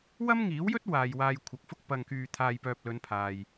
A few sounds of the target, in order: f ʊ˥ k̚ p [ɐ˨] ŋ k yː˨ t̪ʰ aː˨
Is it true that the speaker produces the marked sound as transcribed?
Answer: yes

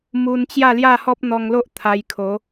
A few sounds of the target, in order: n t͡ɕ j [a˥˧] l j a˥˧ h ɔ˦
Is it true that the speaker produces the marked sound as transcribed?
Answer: yes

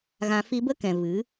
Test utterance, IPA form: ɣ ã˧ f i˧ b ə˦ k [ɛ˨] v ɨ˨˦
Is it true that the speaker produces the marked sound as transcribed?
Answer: no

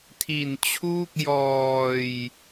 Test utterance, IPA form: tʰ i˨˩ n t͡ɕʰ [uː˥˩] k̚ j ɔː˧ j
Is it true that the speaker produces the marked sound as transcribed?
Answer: yes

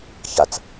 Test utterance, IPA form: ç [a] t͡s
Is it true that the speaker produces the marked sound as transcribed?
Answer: yes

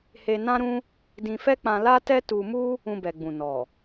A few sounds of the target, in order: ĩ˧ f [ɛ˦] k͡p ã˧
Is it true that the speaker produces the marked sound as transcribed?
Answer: yes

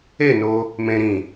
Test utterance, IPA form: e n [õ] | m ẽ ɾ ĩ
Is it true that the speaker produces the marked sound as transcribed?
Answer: no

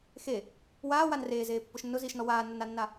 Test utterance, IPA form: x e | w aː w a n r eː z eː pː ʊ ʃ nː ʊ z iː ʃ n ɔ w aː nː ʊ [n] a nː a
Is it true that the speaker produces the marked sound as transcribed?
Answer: yes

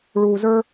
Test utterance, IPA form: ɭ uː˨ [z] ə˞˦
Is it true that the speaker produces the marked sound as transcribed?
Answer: yes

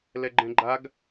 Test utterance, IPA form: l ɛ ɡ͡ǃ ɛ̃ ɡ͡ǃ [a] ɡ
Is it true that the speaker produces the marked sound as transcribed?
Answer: yes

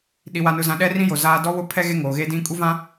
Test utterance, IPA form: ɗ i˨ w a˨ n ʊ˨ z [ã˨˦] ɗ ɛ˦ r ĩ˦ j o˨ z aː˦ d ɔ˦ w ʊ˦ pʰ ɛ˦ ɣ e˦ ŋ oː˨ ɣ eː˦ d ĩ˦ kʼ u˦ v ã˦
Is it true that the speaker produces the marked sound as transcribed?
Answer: no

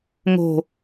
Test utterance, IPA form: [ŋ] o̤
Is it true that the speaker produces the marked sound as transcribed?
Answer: yes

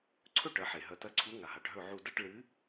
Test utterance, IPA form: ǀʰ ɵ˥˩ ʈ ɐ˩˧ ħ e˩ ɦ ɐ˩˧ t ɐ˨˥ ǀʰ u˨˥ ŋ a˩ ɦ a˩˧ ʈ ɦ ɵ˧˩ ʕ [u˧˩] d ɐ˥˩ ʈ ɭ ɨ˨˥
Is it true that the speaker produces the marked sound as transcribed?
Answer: yes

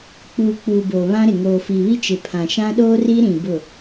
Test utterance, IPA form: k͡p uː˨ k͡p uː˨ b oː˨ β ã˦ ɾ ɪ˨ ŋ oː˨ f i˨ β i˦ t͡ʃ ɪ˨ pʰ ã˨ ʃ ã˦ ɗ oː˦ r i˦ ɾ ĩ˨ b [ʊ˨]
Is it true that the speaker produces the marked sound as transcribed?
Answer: no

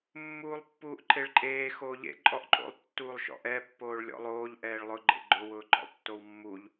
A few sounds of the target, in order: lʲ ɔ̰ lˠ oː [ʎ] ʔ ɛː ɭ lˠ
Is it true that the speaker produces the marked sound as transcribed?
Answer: yes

